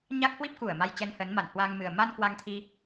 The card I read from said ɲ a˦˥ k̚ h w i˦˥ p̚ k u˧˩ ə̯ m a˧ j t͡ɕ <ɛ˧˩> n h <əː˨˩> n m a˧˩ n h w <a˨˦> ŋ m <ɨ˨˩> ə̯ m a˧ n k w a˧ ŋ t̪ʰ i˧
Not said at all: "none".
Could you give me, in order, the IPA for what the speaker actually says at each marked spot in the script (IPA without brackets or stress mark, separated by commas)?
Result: ɛ˧, əː˨˦, a˧, ɨ˨˩